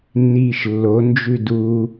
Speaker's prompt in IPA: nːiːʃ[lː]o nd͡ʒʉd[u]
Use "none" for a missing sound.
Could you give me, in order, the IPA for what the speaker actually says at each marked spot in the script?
lː, u

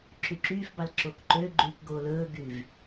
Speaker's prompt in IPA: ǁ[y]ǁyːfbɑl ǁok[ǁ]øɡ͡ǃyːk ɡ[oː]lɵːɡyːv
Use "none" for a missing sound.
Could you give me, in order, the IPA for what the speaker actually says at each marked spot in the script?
y, ǃ, oː

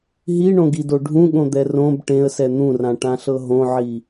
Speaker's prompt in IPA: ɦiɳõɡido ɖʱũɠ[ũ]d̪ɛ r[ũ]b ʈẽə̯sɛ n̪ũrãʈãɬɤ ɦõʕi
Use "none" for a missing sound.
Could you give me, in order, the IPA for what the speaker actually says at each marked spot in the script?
õ, õ

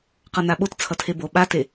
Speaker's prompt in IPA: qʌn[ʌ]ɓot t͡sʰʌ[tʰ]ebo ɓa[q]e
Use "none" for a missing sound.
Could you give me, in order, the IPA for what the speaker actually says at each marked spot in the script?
a, tʰ, t

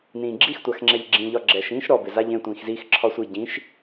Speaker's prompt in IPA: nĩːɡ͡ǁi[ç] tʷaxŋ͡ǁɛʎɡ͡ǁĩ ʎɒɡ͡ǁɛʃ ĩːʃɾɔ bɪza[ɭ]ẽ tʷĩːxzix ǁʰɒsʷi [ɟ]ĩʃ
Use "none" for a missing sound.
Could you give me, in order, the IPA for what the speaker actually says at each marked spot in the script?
x, ʎ, ɟ

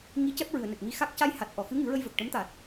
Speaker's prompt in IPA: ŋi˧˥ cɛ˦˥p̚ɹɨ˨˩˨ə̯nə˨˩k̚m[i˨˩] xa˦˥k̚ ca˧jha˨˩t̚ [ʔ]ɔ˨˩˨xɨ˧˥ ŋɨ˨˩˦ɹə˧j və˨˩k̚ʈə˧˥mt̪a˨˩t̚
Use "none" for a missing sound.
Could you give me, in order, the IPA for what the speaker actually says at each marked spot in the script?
i˧, ʔ

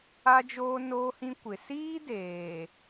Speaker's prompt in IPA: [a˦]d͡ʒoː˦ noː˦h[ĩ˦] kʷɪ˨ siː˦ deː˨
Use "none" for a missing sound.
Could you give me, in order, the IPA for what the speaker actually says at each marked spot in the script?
a˦, ĩ˦

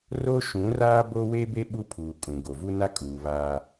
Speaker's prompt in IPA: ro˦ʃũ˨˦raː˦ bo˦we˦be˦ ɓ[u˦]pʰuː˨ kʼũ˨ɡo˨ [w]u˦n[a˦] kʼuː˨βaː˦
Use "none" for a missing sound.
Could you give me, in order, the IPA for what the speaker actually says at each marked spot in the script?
u˦, v, a˦

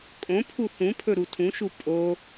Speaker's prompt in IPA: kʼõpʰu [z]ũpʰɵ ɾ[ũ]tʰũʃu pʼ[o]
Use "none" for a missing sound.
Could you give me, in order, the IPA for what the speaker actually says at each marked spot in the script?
θ, u, o

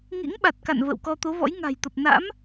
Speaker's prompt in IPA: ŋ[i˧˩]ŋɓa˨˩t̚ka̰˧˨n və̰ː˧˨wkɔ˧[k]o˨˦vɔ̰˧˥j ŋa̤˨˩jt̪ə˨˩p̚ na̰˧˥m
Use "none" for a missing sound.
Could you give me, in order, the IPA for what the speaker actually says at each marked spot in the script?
ḭ˧˥, t̪

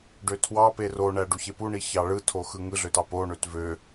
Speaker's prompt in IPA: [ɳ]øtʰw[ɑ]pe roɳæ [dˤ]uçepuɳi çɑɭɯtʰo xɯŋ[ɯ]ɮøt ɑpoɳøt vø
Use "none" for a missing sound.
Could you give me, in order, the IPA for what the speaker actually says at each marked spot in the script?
ɖ, ɑ, ɖ, ɯ

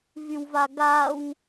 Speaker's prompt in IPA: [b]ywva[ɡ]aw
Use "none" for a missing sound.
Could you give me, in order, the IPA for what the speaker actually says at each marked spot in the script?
v, ɡ

